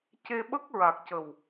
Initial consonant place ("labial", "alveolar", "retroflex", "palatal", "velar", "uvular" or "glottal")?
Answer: palatal